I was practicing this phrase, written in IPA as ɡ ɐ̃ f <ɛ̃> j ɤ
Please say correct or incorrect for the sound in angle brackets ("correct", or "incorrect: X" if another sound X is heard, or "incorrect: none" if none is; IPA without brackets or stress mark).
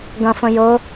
incorrect: ə̃